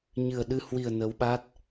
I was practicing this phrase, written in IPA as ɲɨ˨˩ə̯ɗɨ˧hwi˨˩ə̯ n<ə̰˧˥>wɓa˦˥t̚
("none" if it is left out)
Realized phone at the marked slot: ə˨˦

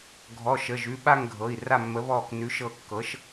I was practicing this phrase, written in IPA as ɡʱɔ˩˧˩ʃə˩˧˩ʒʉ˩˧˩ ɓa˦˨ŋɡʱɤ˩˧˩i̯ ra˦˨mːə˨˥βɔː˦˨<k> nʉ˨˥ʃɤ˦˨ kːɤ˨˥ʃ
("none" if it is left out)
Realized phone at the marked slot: k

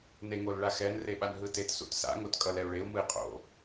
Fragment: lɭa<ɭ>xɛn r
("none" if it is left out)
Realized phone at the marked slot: none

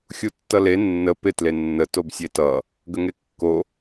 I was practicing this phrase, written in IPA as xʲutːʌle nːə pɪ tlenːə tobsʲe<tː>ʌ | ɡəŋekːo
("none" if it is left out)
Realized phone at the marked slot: t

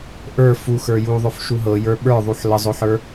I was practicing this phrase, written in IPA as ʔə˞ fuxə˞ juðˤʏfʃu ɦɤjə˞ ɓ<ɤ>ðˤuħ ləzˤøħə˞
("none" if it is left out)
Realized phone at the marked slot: ə˞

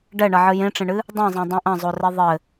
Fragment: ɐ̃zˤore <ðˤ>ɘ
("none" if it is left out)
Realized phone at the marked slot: ðˤ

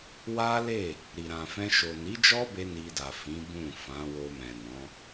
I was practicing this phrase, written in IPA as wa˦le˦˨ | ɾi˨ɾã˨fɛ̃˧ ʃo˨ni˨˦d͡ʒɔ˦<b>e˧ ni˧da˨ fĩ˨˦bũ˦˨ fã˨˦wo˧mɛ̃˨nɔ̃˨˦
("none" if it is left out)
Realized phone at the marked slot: b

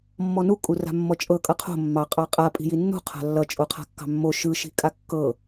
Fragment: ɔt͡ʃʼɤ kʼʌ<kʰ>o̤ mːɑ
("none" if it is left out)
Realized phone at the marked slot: qʰ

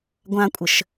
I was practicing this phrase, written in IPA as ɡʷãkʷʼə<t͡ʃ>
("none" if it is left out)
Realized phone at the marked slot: ʃ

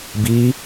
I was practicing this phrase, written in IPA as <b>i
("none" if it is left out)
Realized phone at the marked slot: b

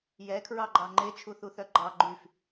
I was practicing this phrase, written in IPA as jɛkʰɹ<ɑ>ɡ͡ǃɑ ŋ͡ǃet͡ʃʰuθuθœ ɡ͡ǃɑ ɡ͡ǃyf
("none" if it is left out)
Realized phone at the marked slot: ɑ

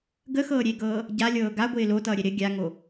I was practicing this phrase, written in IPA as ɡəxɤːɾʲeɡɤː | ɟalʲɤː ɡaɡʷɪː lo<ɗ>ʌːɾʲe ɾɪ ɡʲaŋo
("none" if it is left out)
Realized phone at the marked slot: t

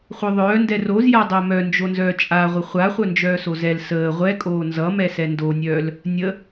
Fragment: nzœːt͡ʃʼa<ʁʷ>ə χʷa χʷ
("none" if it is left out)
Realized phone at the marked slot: ʁʷ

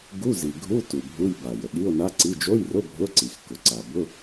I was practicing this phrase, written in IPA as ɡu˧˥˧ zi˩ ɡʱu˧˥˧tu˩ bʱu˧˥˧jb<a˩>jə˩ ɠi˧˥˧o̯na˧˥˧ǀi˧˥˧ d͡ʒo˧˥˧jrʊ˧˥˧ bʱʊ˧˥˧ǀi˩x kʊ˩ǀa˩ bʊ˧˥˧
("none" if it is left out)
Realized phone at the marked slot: a˩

